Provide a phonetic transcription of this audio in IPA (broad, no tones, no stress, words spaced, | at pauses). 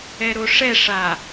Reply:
ɛɾoʂɛ ʂa